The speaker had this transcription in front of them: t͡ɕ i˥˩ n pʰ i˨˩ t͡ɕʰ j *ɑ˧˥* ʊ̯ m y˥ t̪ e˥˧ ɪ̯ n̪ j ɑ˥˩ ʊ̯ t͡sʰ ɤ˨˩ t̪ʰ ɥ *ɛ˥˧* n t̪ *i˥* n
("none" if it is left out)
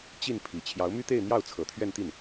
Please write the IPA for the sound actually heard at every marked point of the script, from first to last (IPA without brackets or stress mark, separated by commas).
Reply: ɑ˧˥, ɛ˥˧, i˥˩